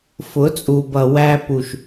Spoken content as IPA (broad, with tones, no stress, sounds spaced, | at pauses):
f ʊ˨˦ t͡sʼ u˨ b ʌ˨ w æ˧ p u˨ ʃ